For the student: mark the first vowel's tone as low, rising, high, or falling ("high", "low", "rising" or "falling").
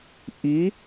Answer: rising